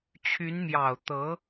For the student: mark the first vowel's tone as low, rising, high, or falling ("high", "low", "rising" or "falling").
rising